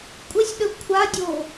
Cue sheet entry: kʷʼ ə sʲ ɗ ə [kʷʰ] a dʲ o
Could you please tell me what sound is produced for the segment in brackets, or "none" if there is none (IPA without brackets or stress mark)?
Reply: kʷʰ